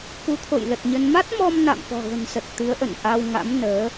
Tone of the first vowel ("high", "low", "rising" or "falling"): rising